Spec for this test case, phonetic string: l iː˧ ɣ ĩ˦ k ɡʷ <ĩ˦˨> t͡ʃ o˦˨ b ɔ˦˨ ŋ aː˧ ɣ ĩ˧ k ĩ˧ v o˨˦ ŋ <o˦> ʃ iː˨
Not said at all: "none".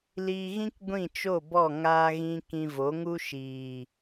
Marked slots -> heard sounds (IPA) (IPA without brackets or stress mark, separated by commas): ĩ˦˨, u˦